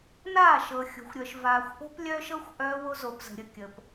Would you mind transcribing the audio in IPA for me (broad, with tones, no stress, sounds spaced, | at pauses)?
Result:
n aː˦˨ ʃ ɤ˨ xʲ o̤˨ xʷ ɾʲ œ˨ ʃ v aː˨ xʷ ʔ o̤˦ p lʲ œː˦ ʃ ɤ˦ xʷ ʔ œː˦ w o˦ z o˨ p z ə̤˨ ɾʲ ə˨ kʲ ə˨ p